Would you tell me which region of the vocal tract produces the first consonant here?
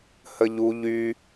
throat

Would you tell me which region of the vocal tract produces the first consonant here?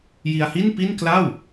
palate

